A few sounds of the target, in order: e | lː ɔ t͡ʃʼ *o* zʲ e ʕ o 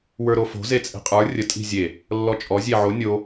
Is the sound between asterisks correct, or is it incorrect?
incorrect